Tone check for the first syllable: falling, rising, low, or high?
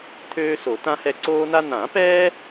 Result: high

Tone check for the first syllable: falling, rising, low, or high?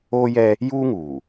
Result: high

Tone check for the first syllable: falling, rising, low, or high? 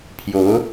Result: rising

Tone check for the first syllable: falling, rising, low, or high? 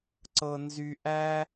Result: low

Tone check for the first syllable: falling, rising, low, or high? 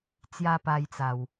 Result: high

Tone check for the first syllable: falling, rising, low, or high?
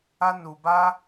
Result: high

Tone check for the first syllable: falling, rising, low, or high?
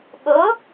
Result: rising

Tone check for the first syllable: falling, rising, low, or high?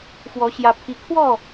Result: rising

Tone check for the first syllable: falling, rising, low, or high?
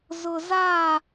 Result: low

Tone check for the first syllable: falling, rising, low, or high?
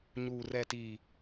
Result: low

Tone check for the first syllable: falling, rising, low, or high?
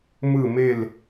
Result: falling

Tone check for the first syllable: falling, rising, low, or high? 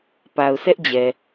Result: low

